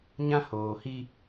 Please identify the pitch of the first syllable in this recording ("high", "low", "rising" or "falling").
high